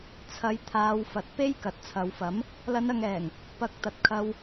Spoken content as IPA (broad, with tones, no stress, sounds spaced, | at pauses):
t͡sʰ ɐ˨˥ j t̪ʰ aː˨˧ w f ɐ˨ t̚ p e˥ j k ɐ˨ t̚ t͡sʰ ɐ˨ w f ɐ˨˥ m | l ɐ˨˧ n ɐ˨ ŋ ɛː˨˩ ŋ | p ɐ˨˥ k̚ t̪ ɐ˨ t̚ kʰ ɐ˧ w